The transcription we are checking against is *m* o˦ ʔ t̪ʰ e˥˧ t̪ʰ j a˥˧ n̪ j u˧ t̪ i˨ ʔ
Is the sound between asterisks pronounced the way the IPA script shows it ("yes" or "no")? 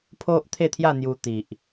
no